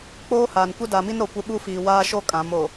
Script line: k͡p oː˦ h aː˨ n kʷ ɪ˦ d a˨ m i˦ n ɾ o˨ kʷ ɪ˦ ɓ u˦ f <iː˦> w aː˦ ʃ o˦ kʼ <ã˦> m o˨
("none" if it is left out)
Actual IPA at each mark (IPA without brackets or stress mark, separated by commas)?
iː˨, ã˨˦